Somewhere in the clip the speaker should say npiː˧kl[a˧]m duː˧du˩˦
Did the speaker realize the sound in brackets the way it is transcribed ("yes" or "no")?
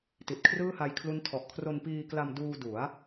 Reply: yes